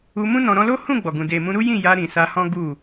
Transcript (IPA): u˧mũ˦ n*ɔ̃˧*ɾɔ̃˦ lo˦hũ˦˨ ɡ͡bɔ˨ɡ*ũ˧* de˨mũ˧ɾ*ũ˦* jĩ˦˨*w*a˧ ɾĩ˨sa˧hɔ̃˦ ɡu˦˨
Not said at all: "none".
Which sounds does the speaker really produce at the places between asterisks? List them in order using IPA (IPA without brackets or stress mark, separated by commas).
ɔ̃˧, ũ˨, u˦, j